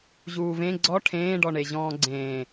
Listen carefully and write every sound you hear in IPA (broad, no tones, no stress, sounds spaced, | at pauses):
ʑ uː v ẽ ɡ͡ǀ ɔ ʈʰ ẽː ɖ ɔ ɳ e ʑ ɔ̃ː ɡ͡ǀ ẽː